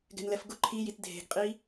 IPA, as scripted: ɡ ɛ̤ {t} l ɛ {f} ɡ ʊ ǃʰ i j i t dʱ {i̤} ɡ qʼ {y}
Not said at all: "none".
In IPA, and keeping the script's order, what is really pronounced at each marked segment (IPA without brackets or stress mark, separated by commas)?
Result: n, f, e̤, i